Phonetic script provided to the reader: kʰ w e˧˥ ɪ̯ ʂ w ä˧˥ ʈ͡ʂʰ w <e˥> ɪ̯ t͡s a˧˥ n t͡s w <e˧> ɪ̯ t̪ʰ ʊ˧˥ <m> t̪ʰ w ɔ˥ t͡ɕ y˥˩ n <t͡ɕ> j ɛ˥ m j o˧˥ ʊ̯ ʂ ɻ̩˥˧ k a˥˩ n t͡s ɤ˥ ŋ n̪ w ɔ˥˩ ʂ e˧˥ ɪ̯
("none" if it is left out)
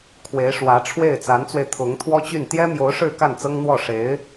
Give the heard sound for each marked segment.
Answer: e˥˩, e˧, ŋ, t̪

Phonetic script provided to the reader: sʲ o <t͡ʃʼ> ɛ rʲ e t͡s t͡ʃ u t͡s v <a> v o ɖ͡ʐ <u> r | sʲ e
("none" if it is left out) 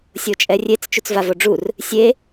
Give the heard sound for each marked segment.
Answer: t͡ʃʼ, a, u

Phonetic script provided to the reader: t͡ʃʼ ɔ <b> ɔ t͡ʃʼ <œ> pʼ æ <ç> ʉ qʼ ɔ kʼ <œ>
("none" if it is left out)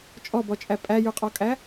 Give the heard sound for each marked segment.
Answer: b, æ, j, æ

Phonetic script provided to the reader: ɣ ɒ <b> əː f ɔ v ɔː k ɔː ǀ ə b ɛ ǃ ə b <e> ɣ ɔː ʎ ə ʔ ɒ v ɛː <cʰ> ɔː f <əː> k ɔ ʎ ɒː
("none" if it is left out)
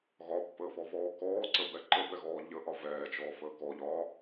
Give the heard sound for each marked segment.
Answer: pː, ɛ, t͡ʃ, əː

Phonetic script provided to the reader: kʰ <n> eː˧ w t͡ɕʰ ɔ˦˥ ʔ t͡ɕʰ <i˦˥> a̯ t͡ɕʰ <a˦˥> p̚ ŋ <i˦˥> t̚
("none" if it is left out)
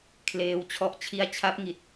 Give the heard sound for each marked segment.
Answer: l, i˦˥, a˦˥, i˨˩

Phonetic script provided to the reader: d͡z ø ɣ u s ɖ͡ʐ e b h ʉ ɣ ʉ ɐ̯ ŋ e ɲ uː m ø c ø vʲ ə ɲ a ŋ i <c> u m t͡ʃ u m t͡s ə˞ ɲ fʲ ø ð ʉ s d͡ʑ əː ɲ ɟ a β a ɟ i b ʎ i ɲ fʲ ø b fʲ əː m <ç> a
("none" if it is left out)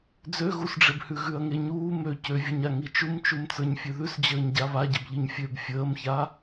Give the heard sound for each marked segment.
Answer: t͡ʃ, ç

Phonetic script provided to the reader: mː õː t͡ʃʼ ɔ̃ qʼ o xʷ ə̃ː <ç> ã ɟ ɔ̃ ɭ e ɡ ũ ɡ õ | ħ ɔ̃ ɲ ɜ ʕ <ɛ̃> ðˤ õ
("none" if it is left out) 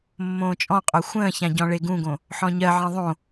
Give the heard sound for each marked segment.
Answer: ç, ẽ

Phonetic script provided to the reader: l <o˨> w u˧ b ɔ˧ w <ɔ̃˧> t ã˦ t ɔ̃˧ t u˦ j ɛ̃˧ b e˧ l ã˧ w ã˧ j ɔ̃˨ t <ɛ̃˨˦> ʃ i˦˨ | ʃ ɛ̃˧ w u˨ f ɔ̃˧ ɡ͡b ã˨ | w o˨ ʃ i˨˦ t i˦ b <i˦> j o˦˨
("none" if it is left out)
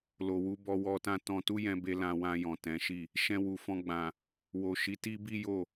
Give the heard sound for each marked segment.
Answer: o˨, ɔ˧, ɛ̃˨˦, i˦

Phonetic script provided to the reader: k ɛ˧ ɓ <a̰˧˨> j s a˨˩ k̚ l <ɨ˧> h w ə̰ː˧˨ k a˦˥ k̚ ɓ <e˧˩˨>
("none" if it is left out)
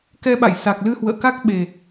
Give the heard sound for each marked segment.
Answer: a̰˧˨, ɨ˧, e˨˩

